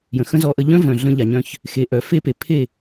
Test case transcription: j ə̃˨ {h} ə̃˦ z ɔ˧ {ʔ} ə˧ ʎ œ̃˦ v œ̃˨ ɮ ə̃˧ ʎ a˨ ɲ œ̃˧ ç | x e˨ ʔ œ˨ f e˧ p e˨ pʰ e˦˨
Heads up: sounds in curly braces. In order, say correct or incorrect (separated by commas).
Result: incorrect, correct